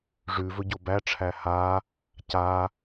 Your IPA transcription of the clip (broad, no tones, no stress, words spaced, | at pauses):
ʐʉ vɵɟobæʈ͡ʂʰæ ha | ca